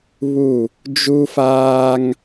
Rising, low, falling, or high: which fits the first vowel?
falling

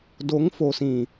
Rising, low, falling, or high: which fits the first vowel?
rising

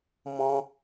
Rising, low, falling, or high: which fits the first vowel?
high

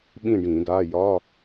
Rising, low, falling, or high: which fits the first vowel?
falling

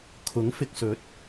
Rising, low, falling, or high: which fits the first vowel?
rising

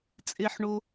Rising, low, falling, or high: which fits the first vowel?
low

